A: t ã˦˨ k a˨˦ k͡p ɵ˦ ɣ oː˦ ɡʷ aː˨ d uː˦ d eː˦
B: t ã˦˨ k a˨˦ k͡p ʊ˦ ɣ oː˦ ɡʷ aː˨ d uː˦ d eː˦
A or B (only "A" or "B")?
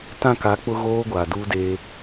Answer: B